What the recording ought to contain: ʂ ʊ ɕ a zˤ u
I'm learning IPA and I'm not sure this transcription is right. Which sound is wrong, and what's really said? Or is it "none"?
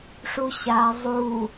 ʊ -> u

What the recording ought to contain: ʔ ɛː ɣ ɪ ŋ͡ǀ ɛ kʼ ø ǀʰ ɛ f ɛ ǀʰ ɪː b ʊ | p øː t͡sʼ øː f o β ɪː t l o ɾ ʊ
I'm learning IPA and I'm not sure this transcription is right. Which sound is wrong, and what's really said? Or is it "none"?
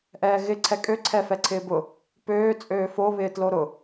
ŋ͡ǀ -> ǀʰ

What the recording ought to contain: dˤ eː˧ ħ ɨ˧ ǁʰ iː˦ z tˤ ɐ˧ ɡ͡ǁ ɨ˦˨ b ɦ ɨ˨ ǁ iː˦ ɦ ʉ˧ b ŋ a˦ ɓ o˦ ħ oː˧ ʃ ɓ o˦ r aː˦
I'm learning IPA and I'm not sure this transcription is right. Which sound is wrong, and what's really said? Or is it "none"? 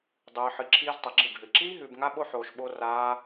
eː˧ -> ɨː˧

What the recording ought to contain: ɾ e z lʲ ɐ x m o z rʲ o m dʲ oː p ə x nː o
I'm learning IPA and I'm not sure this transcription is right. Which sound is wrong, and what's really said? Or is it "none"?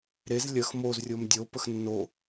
oː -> o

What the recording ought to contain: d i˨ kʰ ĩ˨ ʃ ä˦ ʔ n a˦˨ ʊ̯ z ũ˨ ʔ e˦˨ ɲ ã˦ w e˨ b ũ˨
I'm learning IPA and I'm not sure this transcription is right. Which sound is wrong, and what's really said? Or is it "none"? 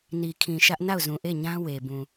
d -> n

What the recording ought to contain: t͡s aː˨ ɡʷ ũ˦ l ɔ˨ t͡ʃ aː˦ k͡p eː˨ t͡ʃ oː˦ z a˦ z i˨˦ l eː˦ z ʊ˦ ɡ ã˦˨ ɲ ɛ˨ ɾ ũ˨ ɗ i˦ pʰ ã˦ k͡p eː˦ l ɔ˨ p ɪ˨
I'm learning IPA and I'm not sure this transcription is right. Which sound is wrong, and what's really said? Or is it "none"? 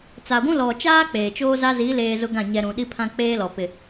none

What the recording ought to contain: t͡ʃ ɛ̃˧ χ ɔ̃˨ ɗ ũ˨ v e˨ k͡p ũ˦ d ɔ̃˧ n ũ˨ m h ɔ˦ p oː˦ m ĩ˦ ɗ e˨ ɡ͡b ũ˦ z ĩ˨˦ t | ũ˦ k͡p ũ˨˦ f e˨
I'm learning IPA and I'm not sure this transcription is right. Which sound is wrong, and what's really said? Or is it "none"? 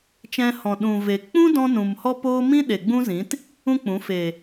χ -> h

